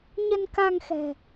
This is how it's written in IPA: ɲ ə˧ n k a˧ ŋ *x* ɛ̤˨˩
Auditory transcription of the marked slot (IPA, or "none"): x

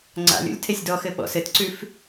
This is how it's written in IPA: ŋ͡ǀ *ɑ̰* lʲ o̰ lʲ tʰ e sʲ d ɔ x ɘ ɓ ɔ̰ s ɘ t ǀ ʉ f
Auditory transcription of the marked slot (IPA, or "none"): a̰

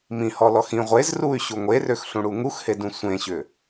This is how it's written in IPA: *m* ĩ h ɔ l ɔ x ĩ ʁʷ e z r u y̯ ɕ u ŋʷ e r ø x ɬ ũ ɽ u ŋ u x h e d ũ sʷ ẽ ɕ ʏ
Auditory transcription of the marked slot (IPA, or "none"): m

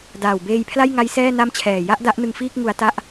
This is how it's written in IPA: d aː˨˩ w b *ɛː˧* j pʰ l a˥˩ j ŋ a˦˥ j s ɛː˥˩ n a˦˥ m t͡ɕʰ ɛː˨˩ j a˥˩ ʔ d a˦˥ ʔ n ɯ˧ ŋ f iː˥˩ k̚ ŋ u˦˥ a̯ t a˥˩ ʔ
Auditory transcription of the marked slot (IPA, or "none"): eː˧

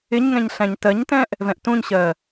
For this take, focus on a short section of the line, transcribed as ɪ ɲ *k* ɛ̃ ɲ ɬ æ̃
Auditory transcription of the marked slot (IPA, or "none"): ŋ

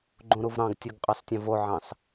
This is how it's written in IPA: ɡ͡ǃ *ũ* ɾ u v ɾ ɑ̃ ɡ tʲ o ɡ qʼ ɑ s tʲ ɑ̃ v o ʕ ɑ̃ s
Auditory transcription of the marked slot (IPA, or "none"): ũ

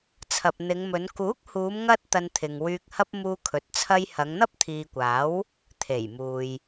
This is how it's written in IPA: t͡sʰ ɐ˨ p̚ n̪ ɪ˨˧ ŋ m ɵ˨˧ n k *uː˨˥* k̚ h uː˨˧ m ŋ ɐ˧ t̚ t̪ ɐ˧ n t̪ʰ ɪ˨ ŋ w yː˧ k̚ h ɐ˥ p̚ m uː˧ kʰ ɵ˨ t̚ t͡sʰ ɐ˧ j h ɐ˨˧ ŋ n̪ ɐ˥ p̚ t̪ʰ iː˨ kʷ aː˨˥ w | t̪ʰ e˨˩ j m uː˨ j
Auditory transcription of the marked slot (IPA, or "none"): uː˨˥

